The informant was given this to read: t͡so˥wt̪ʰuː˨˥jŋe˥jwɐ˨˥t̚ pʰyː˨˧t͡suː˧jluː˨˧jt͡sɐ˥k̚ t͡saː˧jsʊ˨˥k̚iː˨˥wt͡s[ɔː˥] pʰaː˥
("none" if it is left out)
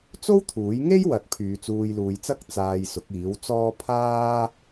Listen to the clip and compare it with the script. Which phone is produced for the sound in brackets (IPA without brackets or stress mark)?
ɔː˥